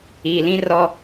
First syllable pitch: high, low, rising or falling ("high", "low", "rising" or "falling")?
low